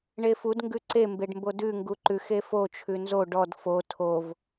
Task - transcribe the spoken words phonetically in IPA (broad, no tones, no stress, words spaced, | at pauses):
ɳefud ŋɡʉǀe mbeɖmbodʉ ŋɡuǃʉx efo t͡ʃʰʉnzo ɖɔd fo tʰov